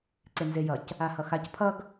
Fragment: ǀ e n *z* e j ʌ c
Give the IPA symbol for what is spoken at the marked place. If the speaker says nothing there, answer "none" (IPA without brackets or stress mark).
z